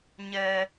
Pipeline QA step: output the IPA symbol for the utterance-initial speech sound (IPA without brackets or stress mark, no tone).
ɲ